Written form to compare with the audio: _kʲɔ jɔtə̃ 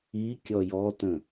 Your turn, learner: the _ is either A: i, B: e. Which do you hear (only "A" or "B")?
A